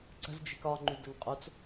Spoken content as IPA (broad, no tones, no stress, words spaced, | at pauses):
ǀə̤z d͡ʒi̤kɒŋ͡ǃy dəŋqʼot͡s